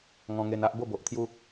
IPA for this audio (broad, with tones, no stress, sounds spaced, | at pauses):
ŋ ɔ̃˧ ŋ e˧ n a˦ ʔ b o˥˧ b o˨ ʔ t̪ʰ j u˦